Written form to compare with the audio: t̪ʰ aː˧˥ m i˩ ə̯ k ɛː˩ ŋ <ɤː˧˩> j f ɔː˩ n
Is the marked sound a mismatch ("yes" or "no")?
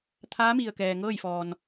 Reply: yes